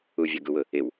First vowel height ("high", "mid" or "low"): high